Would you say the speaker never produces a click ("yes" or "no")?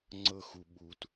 no